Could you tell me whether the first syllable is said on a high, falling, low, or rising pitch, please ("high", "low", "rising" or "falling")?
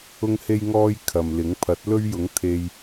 high